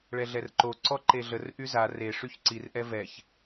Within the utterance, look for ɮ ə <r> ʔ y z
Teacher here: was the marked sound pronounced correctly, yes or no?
yes